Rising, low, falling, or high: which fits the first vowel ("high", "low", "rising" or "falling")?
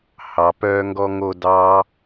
low